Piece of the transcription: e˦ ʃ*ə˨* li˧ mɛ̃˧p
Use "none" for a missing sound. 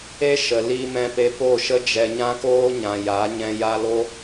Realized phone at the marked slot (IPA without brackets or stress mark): ə˨